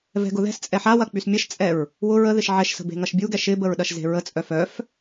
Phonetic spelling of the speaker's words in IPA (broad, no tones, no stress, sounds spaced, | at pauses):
v ɛ̤ ɡ ʊ ð ɛ̤ s t͡sʼ ɛ ħ a w ɐ k͡p y s mʲ ɐ ʃ t͡sʼ ɛ ɹ | w ʊ ɹ ə ð ɪ ʃ ʕ ɛ ʃ s ə̤ b e̤ ŋ ɐ ʃ bʲ u ɡ ɛ ʃ ɪ b ə ɹ ɗ ɐ ʃ z e̤ ɹ ə t͡sʼ œ f œ f